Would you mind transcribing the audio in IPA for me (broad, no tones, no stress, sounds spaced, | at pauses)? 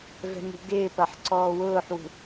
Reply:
v ɛ̤ m ṳ ɡ ɪː p ɐ ħ ǀ ɔː w ʊː ħ w ṳ